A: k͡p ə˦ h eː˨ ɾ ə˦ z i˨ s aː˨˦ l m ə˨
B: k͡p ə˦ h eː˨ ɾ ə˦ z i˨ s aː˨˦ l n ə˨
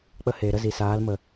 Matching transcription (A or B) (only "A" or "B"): A